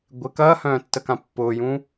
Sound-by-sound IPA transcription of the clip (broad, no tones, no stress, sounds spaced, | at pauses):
ɡʷ ɪ k ɐː h œ̃ː tː ə k ã pː ʊː j ũ